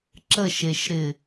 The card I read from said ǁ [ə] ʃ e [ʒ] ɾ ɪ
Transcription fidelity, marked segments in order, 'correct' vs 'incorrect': correct, incorrect: ʃ

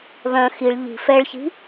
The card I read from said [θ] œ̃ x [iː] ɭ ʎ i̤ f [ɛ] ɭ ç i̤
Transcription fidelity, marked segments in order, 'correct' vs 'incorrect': incorrect: β, incorrect: i, correct

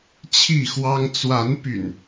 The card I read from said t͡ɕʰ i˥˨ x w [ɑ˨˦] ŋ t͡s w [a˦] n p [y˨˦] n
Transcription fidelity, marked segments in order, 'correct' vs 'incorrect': incorrect: ɑ˦, incorrect: a˨˦, incorrect: y̰˨˩

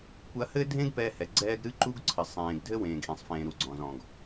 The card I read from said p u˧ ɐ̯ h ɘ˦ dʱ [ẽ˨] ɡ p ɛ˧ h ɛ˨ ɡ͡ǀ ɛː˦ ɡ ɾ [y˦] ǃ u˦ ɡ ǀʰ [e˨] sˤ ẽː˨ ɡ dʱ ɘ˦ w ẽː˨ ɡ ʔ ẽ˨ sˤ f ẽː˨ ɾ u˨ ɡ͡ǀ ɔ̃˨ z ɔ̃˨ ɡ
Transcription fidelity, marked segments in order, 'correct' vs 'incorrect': incorrect: ẽ˦, incorrect: ɨ˦, incorrect: ɘ˨

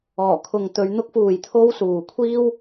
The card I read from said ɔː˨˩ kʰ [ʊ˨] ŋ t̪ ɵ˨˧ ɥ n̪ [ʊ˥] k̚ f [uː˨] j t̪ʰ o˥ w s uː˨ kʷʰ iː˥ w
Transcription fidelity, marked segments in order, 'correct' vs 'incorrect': correct, correct, correct

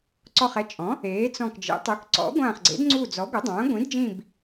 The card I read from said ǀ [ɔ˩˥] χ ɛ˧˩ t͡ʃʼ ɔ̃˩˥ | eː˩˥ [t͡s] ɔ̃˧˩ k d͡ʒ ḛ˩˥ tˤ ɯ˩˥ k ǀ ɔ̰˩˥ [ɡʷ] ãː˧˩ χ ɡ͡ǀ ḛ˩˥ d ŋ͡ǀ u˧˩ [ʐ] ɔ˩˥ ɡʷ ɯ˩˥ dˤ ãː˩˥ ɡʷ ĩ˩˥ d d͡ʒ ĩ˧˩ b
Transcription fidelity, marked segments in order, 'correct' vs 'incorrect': incorrect: ɔ˧˩, correct, correct, incorrect: d͡z

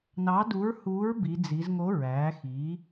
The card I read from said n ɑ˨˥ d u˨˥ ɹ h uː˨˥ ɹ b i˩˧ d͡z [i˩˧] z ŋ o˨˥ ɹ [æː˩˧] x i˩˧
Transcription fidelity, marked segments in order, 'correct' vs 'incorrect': correct, correct

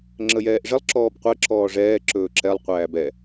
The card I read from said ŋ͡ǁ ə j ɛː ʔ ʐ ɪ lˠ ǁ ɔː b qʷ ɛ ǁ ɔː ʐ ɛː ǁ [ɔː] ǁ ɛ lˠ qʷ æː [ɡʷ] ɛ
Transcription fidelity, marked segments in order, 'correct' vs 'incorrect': incorrect: ɵː, incorrect: b

